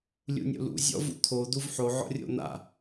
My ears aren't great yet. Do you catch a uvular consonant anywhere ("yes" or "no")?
no